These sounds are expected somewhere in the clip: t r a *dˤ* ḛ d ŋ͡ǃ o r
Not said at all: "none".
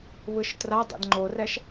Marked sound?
dˤ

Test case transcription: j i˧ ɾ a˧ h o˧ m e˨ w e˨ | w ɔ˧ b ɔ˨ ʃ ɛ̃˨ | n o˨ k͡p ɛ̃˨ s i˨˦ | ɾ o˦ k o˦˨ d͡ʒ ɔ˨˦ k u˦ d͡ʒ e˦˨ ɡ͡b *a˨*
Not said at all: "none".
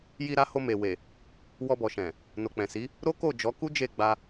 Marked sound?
a˧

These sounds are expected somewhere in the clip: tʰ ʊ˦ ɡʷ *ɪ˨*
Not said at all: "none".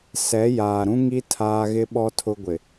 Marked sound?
ɪ˨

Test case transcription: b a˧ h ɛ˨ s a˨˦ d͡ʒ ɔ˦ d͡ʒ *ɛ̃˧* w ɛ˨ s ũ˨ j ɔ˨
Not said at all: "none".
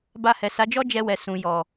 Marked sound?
ɛ˧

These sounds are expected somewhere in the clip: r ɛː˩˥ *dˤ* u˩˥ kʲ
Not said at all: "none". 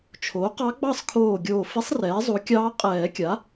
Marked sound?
zˤ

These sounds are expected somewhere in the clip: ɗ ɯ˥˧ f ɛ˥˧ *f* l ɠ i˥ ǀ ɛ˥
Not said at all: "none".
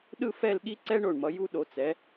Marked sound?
none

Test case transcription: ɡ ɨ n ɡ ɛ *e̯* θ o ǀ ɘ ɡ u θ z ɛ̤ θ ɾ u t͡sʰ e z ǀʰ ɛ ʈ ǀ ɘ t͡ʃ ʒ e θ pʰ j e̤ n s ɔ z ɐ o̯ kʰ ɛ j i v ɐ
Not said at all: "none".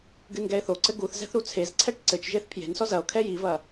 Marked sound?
e̯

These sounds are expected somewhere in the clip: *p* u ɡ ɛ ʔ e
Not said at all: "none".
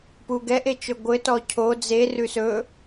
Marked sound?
p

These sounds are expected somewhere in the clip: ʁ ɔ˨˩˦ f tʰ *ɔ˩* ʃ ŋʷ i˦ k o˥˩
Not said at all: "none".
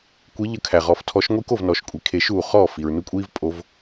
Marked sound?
ɔ˨˦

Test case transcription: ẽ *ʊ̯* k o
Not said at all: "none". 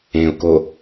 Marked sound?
ʊ̯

